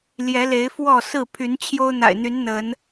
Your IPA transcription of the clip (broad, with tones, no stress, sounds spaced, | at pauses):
l j ɛ˨˦ l e˨˦ ɪ̯ f w ɔ˥˨ s ɹ̩˥˨ pʰ y˨˦ n t͡ɕʰ j o˦ ʊ̯ n̪ a̰˨˩ ɪ̯ n̪ y˨˦ n n̪ ə˨˦ n